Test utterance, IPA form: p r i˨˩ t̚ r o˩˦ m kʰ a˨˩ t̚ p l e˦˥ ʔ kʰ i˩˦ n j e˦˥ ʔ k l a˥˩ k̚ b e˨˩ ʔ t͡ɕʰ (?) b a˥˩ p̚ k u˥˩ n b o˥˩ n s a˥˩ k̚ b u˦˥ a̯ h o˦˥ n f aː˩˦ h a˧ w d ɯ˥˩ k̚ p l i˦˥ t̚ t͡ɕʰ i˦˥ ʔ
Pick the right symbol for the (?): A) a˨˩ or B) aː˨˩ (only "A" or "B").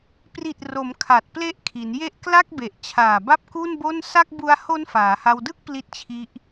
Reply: B